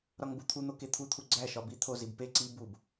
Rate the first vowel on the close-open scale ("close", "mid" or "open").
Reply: open